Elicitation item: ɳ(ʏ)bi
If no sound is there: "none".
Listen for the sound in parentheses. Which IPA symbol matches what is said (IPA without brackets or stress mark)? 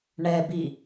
ɛ